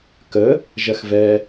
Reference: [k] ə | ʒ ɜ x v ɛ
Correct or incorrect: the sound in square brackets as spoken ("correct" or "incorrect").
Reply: correct